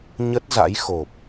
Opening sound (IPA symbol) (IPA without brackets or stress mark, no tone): ɲ